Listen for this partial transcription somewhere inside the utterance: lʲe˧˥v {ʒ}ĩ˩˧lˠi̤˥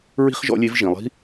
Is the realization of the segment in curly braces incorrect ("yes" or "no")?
no